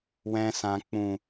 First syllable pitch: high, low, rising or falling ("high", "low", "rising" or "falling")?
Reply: low